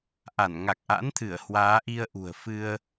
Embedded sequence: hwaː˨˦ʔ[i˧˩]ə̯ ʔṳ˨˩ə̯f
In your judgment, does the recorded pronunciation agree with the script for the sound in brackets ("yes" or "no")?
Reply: no